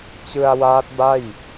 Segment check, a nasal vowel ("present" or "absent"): absent